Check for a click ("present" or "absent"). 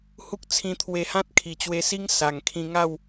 absent